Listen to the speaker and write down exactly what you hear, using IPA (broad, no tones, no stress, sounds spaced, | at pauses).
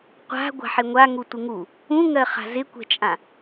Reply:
qʷ a̤ ɡʷ a̤ ħ ɪ ŋʷ a ŋ u tʷ ɪ ŋ u | ũ ŋ ɜ χ a̤ z ɪ kʷ ɛ̤ t͡ʃʼ ã